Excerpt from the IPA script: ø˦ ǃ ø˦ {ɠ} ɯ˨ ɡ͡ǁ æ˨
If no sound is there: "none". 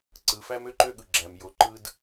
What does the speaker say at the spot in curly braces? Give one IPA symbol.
ɠ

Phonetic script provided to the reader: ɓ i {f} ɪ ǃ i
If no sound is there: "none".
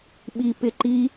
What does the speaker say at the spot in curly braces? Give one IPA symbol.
p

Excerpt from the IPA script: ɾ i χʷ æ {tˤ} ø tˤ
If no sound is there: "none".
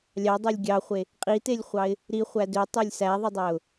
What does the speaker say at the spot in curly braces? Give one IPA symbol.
d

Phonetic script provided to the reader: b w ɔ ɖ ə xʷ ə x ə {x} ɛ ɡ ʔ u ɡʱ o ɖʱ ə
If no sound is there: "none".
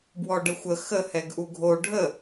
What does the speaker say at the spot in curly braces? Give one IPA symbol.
h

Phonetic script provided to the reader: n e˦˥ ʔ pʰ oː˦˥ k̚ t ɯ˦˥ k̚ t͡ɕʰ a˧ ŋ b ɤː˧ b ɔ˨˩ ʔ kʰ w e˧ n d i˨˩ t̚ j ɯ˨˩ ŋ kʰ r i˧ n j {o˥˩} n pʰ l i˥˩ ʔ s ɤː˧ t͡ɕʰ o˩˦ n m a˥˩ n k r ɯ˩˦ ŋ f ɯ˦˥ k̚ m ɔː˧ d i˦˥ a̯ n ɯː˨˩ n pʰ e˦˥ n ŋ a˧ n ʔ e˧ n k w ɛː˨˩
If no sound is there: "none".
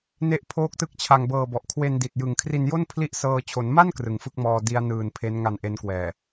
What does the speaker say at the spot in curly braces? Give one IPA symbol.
o˥˩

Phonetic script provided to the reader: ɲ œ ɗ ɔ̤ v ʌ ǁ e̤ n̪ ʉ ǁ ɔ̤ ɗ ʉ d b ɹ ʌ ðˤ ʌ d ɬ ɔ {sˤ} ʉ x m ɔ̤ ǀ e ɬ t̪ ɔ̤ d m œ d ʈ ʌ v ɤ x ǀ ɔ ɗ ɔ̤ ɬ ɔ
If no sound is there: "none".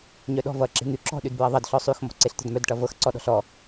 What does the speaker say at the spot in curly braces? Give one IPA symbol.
sˤ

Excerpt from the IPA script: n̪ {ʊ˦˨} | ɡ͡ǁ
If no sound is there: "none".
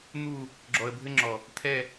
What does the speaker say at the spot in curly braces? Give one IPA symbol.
u˦˨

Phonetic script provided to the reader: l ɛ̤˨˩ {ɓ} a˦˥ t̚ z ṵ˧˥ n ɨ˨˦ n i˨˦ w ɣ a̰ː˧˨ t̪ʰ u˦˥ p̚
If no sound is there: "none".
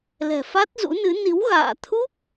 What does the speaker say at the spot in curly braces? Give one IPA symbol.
f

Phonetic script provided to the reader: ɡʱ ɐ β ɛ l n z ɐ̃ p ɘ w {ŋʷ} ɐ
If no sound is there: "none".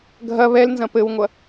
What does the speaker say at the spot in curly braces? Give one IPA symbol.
ŋʷ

